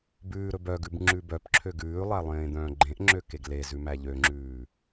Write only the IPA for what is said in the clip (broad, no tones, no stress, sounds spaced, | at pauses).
b ʉː ɾ ɵ b œ ɡ ʉ b ŋ͡ǁ ʉ b œ p ǁʰ ø ɡ ʉː lˠ æ lˠ ẽː d̪ œ̃ː ɡ͡ǃ ẽ ʔ ŋ͡ǁ ø k e ɡ l e z ʉ m æ ʎ ø ŋ͡ǁ ʉː